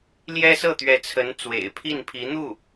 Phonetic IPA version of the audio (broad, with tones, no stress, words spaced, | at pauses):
ljɛ˥sɤ˥˩t̪ɥɛ˧˥t͡sʰə˧˥n t͡swḛ˨˩ɪ̯pʰi˥˩npʰi˧˥n̪u˥˩